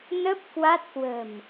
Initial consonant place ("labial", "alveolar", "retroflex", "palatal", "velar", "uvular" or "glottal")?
alveolar